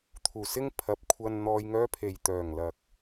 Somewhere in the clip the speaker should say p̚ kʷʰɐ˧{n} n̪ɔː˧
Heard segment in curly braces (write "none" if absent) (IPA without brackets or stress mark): n